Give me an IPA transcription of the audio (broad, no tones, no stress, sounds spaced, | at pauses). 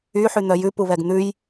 y ħ y n̪ œ j ʉ p u β ɛ ɡ n̪ ʉ j